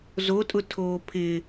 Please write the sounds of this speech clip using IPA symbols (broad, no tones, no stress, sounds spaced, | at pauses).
z o tʼ ʊ tʰ oː pʰ ɪ